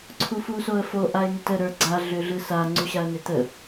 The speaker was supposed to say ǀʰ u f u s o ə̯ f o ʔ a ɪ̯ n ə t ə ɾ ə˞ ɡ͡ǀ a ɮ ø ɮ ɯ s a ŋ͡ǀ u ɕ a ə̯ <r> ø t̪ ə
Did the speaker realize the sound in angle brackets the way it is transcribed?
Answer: no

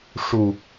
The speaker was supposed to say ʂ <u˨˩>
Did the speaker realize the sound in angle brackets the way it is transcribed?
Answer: yes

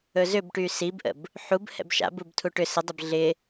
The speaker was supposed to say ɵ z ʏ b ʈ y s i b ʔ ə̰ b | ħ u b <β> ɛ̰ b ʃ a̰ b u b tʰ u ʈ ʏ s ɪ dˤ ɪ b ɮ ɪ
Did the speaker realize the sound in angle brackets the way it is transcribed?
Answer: no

